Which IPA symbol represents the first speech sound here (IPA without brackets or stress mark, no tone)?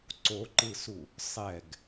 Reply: ǀ